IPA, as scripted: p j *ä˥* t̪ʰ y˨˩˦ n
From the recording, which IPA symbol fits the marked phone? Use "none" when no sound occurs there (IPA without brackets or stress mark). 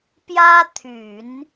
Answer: ä˥